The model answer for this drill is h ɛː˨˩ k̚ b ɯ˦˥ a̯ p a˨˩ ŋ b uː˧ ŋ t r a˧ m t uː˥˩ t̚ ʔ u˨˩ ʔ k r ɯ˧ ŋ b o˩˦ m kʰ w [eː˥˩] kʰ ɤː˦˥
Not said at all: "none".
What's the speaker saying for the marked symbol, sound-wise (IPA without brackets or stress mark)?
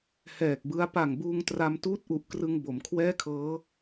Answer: ɛː˥˩